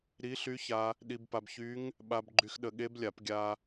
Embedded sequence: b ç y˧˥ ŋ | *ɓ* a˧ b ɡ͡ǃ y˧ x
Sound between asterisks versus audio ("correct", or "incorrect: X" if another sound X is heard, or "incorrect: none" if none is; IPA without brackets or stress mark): correct